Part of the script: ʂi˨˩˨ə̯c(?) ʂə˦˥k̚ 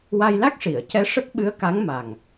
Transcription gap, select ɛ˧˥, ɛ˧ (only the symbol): ɛ˧˥